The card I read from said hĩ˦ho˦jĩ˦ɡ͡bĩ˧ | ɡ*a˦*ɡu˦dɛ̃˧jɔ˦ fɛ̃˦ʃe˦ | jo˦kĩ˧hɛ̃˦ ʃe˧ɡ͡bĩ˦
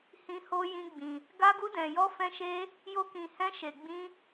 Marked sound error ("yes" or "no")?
no